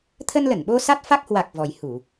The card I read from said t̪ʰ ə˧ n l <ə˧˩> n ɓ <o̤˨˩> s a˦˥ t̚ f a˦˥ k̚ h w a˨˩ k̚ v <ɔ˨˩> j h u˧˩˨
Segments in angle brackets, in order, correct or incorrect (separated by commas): correct, incorrect, correct